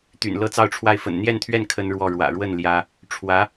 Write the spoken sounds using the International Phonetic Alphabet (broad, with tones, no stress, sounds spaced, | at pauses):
t̪ y̰˨˩ n l ɤ˥˧ t͡s ɑ˥˧ ʊ̯ ʈ͡ʂʰ w a˥˩ ɪ̯ f ə̰˨˩ n n̪ j ɛ˥˧ n t̪ʰ ɥ ɛ˥˩ n kʰ ə˥ n ɻ w ɔ˥˩ ɻ w ä̰˨˩ ɻ w ə˥˩ n l j ä˥ | ʈ͡ʂʰ w ä˧˥